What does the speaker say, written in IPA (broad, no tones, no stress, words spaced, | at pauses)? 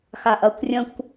xaʔɐkʷrʲɐ̃kʷ